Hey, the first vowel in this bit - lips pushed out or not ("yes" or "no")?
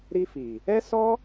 no